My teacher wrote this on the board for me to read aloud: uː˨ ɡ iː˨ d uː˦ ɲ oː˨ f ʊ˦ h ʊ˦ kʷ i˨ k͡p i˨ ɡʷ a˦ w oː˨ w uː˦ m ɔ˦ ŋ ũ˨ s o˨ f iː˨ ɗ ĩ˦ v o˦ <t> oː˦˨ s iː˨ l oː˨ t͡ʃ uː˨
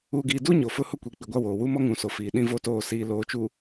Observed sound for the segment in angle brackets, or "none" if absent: t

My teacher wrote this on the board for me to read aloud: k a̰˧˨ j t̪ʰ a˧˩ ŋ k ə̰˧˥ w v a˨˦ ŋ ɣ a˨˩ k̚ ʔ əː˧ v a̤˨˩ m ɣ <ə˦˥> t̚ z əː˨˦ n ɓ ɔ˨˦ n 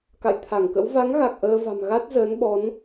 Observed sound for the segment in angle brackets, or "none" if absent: a˦˥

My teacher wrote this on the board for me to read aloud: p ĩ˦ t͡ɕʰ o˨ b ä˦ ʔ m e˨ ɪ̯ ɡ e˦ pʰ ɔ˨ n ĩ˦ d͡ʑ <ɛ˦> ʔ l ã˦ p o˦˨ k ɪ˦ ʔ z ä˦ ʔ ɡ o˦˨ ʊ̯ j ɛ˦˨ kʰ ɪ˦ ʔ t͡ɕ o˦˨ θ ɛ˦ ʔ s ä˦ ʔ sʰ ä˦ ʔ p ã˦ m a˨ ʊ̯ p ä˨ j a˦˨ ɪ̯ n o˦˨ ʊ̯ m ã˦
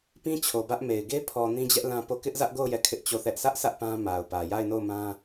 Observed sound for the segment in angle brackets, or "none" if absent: ɛ˦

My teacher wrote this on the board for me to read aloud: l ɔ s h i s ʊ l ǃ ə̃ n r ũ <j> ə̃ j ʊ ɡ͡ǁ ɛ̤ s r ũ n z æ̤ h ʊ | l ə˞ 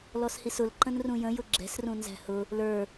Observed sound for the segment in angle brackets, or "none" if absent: j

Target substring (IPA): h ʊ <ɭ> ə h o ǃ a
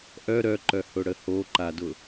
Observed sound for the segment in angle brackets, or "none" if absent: ɽ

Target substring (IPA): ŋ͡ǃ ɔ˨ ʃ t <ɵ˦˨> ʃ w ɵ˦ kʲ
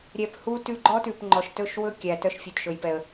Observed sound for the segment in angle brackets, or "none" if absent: ɵ˦˨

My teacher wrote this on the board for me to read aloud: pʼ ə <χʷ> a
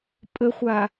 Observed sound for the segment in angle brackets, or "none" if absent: χʷ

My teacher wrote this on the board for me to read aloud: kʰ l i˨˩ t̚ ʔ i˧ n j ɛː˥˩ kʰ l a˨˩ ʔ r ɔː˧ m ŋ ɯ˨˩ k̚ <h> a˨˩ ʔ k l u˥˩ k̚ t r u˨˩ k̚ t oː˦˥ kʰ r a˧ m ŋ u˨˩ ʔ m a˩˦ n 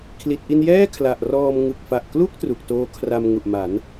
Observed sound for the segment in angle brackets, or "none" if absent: f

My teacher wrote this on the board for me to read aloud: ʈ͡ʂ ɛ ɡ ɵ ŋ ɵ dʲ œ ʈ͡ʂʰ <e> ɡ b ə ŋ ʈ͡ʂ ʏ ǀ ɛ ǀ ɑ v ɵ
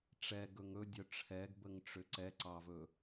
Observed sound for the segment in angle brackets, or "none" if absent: ɛ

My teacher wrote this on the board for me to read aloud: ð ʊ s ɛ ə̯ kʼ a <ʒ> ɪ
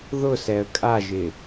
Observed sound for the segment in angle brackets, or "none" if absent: ʒ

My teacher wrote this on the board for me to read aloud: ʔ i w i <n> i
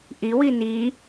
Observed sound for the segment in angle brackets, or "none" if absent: n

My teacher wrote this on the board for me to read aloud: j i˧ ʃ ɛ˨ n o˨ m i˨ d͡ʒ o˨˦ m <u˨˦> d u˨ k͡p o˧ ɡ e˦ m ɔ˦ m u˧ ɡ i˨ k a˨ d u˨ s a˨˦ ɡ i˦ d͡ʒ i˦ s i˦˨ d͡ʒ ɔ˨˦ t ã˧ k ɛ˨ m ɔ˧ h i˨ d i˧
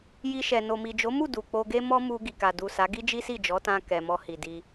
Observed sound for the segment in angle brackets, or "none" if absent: u˦˨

